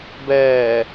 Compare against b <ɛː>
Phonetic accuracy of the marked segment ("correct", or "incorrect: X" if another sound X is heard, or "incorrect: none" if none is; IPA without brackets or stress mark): correct